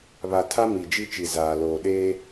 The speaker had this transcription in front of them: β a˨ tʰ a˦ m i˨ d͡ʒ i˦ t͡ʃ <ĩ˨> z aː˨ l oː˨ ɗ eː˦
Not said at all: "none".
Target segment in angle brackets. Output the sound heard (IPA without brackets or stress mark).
i˨